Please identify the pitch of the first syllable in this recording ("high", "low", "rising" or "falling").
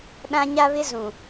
high